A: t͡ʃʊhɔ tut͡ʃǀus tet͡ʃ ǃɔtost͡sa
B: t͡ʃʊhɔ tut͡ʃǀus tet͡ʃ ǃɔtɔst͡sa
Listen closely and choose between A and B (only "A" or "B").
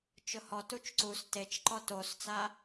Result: A